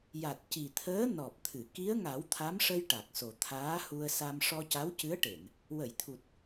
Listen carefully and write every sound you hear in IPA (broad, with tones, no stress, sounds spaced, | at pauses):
j a˨˩ t̚ c i˨˩ t̪ʰ əː˧˥ n ɔ˨˩ p̚ t̪ʰ ɨ˨˩˨ k i˧˥ ə̯ ŋ a˨˩˦ w t̪ʰ a˧˥ m ʂ ə˧ j ʈ a˨˩ k̚ s o˨˩ t̪ʰ aː˧˥ h u˧ ə̯ s a˧ m ʂ ɔ˧ c a˧˥ w c ɨ˧˥ ə̯ ʈ e˨˩˨ n | w ə˨˩˨ j t̪ʰ u˨˩ t̚